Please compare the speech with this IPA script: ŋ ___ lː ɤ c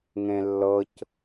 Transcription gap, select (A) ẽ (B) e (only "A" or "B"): A